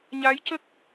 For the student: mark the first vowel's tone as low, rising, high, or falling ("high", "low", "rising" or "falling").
rising